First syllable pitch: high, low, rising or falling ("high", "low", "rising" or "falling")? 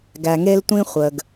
low